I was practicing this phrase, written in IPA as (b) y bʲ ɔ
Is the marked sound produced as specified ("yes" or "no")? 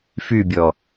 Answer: no